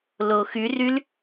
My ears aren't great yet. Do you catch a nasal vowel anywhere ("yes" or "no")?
no